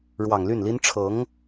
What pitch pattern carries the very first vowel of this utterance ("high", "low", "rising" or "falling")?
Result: low